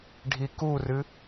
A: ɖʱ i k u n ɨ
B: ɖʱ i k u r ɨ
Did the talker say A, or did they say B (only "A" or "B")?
B